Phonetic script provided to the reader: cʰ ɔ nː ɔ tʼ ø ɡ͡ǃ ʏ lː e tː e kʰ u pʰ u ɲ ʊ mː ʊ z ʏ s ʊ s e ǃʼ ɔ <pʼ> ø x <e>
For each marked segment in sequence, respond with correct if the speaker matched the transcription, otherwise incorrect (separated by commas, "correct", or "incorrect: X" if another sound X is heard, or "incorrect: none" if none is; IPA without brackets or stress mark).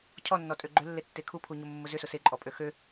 correct, incorrect: ø